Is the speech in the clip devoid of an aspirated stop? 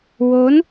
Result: yes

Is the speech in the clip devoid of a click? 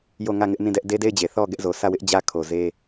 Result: yes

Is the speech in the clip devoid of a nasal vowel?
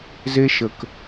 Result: yes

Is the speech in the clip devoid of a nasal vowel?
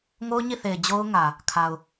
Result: yes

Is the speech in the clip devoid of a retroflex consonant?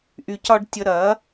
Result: no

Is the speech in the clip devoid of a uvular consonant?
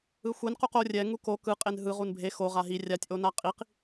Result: no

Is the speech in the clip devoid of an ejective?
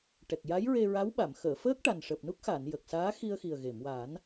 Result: yes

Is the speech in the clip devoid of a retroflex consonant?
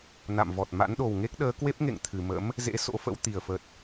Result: yes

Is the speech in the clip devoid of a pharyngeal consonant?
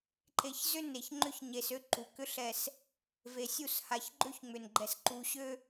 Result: yes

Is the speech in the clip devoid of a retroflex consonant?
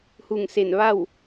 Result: yes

